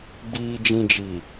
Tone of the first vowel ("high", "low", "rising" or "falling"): low